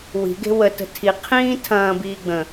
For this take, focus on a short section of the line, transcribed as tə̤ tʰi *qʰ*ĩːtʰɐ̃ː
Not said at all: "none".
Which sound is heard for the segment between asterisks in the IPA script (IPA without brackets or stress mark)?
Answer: qʰ